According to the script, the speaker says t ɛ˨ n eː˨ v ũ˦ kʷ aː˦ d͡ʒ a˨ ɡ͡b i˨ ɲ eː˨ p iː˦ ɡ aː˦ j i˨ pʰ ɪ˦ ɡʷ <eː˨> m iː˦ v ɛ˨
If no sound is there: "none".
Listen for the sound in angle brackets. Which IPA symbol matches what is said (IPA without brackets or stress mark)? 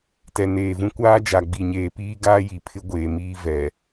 eː˨